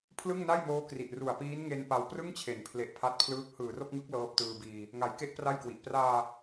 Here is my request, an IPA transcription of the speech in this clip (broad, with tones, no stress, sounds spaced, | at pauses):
pʰ l ɯ˥˩ ŋ n a˥˩ j m oː˦˥ k r i˨˩ ʔ r u˨˩ a̯ p iː˦˥ n ŋ e˧ n p a˧ w p r ɯ˥˩ ŋ t͡ɕʰ e˩˦ n pʰ l e˨˩ ʔ pʰ a˥˩ t̚ pʰ l ɯː˥˩ k̚ h ɯː˨˩ r o˥˩ k̚ ŋ ɯ˦˥ k̚ l ɤː˦˥ p̚ t ɯː˧ b iː˧ | ŋ a˨˩ j k e˥˩ ʔ p r a˥˩ j k w i˨˩ ʔ p r aː˧